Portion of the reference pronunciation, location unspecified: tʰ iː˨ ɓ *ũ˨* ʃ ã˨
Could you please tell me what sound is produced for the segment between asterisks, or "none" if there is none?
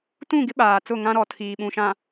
ũ˨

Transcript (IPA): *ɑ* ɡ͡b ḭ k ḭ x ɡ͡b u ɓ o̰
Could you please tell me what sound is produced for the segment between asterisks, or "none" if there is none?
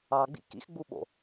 ɑ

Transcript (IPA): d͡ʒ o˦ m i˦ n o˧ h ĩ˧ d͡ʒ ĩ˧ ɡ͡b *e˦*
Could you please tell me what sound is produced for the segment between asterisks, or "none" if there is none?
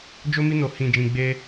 e˦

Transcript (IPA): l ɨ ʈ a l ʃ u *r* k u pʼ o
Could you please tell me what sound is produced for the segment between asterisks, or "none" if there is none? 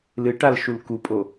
l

